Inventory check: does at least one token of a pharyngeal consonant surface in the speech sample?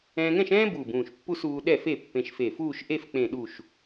no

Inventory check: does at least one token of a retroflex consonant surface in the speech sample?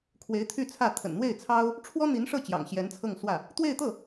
yes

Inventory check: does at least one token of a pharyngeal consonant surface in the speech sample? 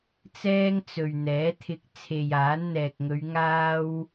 no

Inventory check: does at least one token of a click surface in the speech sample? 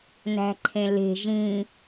yes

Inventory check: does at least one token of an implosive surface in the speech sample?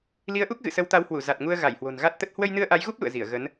no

